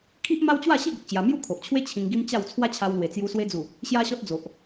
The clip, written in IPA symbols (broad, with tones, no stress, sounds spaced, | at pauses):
kʰ i˦ ʔ m a˦ w t͡ɕ w a˥˧ ɕ i˥˧ ɡ ə˨ k̚ t͡ɕ j a˧ m j u˥˧ kʰ o˨ ʔ t͡ɕʰ w e˦ t͡ɕʰ ĩ˧ ŋ ɡ i˦ m t͡ɕ a˥˧ w t͡sʰ w a˦ t͡ɕʰ a˧ w l w e˨˩ t͡s j u˧ s w e˧ d͡z u˨˩ | ɕ j a˦ ɕ ɔ˦ t̚ d͡z o˨ ʔ